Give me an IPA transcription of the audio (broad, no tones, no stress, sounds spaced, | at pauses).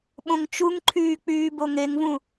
ɓ õ ŋ t͡ʃ u ŋ ǃʰ yː k͡p yː b o ŋ e ŋ v ũ